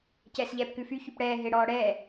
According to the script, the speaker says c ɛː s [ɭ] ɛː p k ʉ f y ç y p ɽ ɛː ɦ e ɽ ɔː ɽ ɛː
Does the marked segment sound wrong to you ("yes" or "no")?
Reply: yes